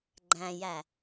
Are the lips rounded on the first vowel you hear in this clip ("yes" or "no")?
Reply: no